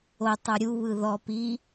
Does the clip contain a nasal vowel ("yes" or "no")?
no